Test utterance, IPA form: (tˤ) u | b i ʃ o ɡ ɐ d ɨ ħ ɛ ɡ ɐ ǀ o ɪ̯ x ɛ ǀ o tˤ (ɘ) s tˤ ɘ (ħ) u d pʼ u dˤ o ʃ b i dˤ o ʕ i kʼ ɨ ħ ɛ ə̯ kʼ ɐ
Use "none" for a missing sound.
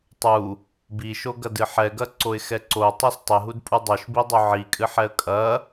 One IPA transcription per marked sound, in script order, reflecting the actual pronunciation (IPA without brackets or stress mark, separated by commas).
tˤ, ɛ, ɦ